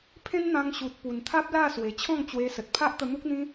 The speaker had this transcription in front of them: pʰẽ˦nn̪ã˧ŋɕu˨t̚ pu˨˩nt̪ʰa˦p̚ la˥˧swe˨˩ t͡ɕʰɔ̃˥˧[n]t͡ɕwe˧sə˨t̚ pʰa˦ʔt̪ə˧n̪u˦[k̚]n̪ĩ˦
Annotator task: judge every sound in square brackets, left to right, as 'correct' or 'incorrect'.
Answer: incorrect: ŋ, correct

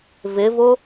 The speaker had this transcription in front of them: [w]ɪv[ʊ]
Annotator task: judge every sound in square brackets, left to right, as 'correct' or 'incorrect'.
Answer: incorrect: v, correct

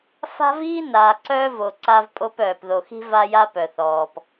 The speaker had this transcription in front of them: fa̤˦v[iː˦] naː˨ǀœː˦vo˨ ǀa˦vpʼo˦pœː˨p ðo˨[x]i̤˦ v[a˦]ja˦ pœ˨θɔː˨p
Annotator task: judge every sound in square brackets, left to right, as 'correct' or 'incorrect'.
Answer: correct, correct, correct

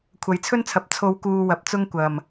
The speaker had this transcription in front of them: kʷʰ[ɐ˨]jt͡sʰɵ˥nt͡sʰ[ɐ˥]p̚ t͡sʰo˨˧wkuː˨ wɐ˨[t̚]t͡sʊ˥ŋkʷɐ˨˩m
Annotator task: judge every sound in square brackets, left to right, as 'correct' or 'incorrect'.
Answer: correct, incorrect: ɐ˨, incorrect: p̚

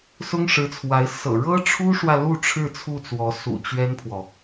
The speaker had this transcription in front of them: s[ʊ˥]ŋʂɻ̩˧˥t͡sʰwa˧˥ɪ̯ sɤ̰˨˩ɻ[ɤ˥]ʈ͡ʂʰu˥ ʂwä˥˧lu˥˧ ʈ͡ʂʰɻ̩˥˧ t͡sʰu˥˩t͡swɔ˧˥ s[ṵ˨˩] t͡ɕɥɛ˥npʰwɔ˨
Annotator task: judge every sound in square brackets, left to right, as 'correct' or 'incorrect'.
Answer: correct, correct, correct

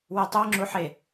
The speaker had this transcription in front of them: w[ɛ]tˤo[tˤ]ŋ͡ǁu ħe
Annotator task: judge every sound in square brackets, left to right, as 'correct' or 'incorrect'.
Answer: incorrect: e, incorrect: none

